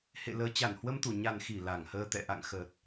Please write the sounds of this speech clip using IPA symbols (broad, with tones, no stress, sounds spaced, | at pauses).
h ḛ˧˨ l əː˧ t͡ɕ a˧˩ n h w ə˧ m t̪ u˧˩ ɲ a˨˩ n x i˧˩ l a˧˩ ŋ h əː˧ t̪ ɛ̰˧˨ ʔ a̰˧˨ ŋ x əː˨˩ t̚